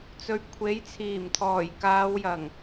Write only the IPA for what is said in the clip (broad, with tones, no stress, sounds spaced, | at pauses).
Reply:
t͡s ɵ˨ ɥ kʷʰ e˨˥ j t͡sʰ iː˨˩ m t̪ʰ ɔː˨˩ j k aː˨˧ w j ɐ˨˩ ŋ